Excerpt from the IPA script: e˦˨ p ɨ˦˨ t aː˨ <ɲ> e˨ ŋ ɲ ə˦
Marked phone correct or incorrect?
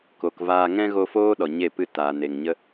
incorrect